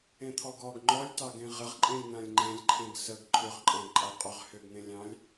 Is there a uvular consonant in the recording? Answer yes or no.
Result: yes